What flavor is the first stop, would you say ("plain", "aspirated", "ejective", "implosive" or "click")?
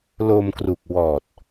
plain